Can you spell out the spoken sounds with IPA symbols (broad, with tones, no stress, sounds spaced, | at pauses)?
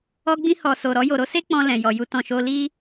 ɔ˧ ɡ͡b ĩ˧ h ɔ˨ s o˨ ɾ ɔ˧ j o˨ ɾ o˨˦ s e˦ k͡p ɔ̃˧ l ɛ̃˨ j ɔ˨ j u˧ t ɔ̃˨ ʃ o˧ l i˦